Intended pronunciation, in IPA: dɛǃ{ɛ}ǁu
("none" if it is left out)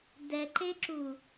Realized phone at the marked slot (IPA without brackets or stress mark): e